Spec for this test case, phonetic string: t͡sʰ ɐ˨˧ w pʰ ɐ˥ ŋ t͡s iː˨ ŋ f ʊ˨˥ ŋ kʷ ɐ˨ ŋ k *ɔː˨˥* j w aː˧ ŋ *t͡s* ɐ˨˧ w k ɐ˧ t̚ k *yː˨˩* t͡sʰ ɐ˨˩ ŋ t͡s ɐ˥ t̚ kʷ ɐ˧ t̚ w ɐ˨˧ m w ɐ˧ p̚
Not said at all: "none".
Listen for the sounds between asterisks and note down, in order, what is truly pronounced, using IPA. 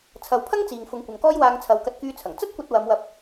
ɔː˥, t͡sʰ, yː˧

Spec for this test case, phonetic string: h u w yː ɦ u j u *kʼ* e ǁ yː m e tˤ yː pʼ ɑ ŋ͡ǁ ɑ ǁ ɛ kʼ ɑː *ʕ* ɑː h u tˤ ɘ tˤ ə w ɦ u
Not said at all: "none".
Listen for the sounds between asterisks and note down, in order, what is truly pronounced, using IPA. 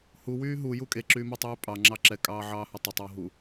kʼ, ʕ

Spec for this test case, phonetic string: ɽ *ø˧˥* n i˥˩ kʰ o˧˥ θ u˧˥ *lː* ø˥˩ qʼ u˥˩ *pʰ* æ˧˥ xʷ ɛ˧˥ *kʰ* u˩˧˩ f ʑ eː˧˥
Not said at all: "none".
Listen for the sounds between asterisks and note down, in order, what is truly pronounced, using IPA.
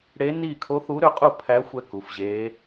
e˧˥, ɾ, pʰ, k

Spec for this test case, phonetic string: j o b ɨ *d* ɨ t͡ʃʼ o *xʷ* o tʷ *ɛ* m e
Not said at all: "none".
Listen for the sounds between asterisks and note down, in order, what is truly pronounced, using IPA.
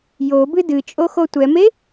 d, x, ɛ

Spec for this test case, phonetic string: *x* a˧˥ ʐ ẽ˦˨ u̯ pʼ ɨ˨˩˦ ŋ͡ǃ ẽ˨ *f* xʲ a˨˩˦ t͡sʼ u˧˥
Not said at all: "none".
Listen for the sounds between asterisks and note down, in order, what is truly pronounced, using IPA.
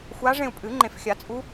xʷ, f

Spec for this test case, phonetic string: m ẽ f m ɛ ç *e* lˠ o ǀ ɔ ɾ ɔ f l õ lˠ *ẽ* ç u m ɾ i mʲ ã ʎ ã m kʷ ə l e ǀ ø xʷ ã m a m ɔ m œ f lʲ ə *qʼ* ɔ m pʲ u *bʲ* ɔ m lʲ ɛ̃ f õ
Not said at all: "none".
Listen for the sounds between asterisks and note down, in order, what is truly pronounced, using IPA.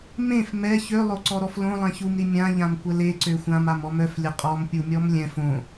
ø, ɛ̃, qʼ, mʲ

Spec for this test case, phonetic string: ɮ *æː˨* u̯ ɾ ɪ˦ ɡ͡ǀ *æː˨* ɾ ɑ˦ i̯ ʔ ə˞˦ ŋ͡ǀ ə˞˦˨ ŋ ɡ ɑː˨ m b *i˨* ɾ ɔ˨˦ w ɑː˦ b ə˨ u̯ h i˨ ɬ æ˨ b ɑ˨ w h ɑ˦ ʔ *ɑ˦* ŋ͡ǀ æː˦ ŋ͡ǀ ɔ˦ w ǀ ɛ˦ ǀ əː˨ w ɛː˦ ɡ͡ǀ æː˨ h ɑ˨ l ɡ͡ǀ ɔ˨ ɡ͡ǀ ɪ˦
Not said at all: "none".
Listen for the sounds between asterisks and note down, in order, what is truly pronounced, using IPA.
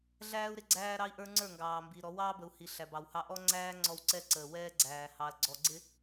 æː˦, æː˦, i˨, ɔ˦

